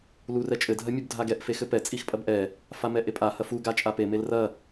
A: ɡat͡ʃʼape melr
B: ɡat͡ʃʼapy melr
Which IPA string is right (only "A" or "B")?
A